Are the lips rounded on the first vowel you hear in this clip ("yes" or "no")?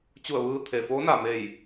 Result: yes